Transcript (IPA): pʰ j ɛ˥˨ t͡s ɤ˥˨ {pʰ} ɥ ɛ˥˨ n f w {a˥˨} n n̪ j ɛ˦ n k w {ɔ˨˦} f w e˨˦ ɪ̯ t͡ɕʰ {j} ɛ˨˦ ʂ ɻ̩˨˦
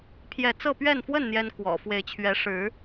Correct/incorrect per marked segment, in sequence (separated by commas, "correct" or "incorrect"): incorrect, incorrect, incorrect, incorrect